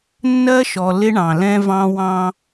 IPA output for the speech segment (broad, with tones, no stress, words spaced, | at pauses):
nːɜ˦ʃɔ˨ lɪ˦ɳɑ̃˨lɛ̃˦vɑ̃˦ wɑ̃˦